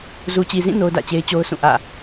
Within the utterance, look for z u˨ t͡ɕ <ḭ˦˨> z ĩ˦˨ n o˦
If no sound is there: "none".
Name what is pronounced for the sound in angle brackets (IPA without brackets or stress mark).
i˨